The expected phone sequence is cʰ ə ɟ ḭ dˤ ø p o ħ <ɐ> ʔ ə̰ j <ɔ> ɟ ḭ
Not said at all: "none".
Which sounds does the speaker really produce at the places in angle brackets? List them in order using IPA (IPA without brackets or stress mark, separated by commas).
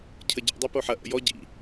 ɐ, ɔ